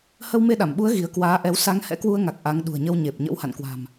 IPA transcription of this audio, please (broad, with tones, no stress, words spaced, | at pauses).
hə˧wme˧ɗa˧˩mɓu˨˦ə̯ ɣi˨˦ə̯ kwaː˨˦ʔɛ˨˦w sa˨˦ŋhɛ̰˧˥kwu˧ə̯ŋa˨˩k̚ ʔa˨˦ŋ ɗṳ˨˩ə̯ɲə˧w ɲe˨˩p̚ ɲə̰˧˥wha̰˧˨nkwa̤˨˩m